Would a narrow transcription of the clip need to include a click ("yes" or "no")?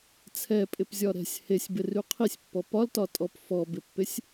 no